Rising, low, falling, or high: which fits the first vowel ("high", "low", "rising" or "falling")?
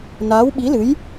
rising